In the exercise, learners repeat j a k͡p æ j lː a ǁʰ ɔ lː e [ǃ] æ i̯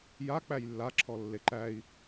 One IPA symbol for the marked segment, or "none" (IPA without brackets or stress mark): ǃ